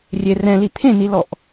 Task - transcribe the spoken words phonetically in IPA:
rʲ e r ɛ̃ l i t̪ʰ ẽ n i l ɔ ʔ

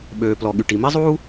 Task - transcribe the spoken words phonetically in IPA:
ɓ øː˩ p l ɔ˩ ɠ y˩ ʈ i˩ m i˥ zˤ uː˥

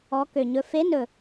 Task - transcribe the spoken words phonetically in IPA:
ɔ˧˥ k ø˨˩ ɲ ɵ˧˥ f e˧˥ n ɵ˨˩

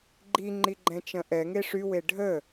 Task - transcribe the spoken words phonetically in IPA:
ɡ͡ǃ i ŋ͡ǃ i ɡ͡ǃ ɛ̃ t͡ʃ ɐ̃ ʔ ɛ ŋ e ʂ y w e ɖʱ ə

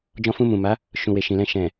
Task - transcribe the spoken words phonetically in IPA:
d͡ʒ ɔ̃˧ f ũ˧ m ũ˨ m a˨˦ | ʃ ũ˨ w e˨ ʃ ĩ˨ l ɛ̃˧ ʃ ɛ̃˨

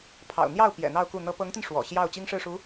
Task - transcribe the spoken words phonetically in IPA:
pʰ ɑ̰˨˩ ʊ̯ n̪ j ɑ˥˩ ʊ̯ p j ɛ̰˨˩ n̪ ɑ˥˧ ʊ̯ k u˥˩ n̪ ɤ˥ p ɤ˧˥ ŋ t̪ i˧ n ʂ w ɔ̰˨˩ ɕ j ɑ˥˩ ʊ̯ t͡ɕ i˥ ŋ ʂ ɻ̩˥˩ ʂ u˧˥

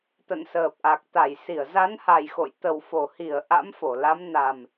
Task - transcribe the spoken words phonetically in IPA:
t̪ ə̰˧˨ n s əː˨˩ p̚ ʔ a˨˩ k̚ t̪ a˧˩ j s i˧˩ ə̯ z a˨˦ n h a˨˩ j x o̰˧˨ j t̪ ə˨˩ w f o˧˩ h i˧˩ ə̯ ʔ a̰˧˥ m f o˧˩ l a˨˦ m n a˨˩ m

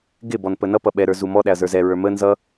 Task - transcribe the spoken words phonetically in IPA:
ɡ ɪ b ɔ n p ə n ʌ p ʌ ɓ ɛ ɾ ə˞ z u m ɔ ɗ æ ɐ̯ z ə˞ z ɛ ɹ ə˞ m ə n z ʌ

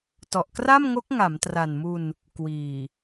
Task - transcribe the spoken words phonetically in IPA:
t ɔ˨˩ ʔ k r a˥˩ m ŋ o˦˥ k̚ ŋ a˩˦ m t r a˨˩ n m u˧ n | k w iː˨˩

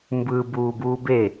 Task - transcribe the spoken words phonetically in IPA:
m b ɯ b uː b uː b e

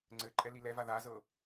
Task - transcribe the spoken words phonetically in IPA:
ŋ͡ǀ ɘ ǃʼ ɛ l i l ɛ v a ð a z ɤ

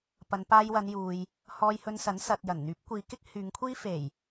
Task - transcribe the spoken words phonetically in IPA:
p ɐ˨˧ n p aː˧ j w ɐ˨˧ n j uː˨ j | h ɔː˧ j h ɵ˧ n s ɐ˨˥ n s ɐ˨ t̚ j ɐ˨˩ n n̪ yː˨˥ p̚ kʷ iː˨ k ɪ˥ k̚ h yː˨˧ ŋ kʷʰ iː˥ f e˨˩ j

